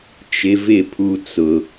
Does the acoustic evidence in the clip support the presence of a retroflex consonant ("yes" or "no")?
no